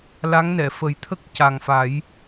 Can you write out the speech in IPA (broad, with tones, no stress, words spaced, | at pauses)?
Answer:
la˧˥ŋnɛ˨˩˨fə˨˩˦j t̪ʰə˦˥k̚ca˨˩ŋfa˨˩˦j